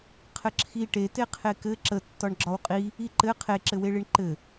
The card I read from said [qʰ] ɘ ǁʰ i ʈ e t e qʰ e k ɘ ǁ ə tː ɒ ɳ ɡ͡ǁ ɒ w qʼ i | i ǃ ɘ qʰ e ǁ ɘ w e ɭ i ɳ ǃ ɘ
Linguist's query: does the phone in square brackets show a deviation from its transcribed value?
no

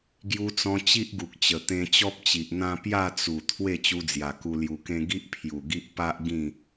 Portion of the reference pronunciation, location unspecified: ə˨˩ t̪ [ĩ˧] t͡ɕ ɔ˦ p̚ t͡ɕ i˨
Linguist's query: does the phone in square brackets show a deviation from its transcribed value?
yes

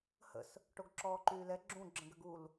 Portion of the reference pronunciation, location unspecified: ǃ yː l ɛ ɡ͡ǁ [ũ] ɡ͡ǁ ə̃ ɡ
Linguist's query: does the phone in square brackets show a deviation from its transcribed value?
no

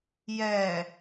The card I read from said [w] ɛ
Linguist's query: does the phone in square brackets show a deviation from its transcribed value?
yes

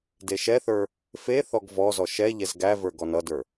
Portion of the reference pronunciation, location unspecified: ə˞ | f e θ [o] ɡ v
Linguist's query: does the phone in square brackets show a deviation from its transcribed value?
yes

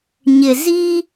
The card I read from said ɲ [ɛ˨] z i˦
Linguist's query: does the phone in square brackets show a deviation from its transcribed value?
yes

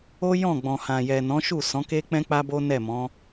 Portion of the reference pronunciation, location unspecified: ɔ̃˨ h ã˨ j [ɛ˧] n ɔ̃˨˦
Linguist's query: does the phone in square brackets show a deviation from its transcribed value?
yes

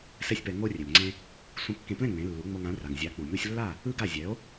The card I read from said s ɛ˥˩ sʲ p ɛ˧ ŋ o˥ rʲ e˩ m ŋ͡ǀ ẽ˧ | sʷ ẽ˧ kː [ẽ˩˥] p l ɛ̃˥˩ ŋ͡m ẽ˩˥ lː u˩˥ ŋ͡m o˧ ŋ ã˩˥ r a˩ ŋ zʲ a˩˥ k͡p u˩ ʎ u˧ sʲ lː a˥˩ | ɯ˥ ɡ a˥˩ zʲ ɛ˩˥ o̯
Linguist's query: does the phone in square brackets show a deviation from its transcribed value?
yes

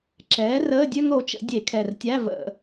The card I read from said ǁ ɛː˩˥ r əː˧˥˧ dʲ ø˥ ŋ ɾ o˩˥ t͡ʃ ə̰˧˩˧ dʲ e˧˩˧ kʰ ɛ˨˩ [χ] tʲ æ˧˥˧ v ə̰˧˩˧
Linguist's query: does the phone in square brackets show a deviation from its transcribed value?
yes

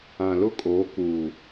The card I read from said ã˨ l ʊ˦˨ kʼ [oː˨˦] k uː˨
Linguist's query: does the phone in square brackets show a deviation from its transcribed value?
no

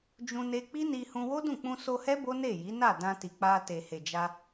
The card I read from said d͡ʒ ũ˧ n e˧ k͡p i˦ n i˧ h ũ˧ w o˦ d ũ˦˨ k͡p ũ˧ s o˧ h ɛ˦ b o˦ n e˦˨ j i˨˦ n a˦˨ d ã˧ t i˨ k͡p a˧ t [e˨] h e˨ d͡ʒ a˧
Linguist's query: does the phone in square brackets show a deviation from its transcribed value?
no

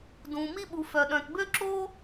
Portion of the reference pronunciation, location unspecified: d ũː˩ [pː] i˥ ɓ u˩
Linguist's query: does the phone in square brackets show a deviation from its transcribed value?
yes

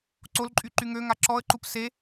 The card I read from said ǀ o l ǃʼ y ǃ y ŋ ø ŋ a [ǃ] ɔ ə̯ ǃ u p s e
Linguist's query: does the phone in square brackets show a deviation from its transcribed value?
yes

